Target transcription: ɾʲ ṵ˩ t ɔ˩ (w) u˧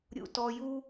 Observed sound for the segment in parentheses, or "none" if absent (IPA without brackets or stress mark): j